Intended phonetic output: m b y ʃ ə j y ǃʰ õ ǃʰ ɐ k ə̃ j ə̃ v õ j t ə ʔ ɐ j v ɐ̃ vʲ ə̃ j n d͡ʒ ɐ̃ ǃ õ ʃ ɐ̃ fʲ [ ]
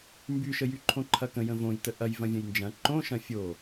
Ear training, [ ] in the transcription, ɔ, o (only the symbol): o